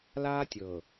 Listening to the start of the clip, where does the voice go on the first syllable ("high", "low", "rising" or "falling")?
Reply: high